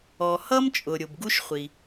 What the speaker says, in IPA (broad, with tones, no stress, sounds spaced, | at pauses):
ɔ˩ h ʌ˥ m t͡ʃʼ ʊ˩ ɾʲ ʊ˩ b ɡ u˥ ʃ χʷ i˩